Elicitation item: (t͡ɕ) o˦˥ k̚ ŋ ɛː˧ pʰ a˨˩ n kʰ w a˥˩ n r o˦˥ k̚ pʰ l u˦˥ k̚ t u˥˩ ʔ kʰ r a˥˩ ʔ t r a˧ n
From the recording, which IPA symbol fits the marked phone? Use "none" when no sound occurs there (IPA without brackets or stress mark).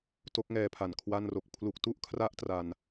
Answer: t